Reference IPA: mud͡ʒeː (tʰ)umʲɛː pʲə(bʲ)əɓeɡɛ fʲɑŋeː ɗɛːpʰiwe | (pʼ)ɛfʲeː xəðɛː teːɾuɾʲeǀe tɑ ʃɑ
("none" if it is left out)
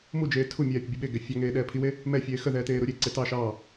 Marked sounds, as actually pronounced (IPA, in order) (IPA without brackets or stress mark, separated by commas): tʰ, bʲ, m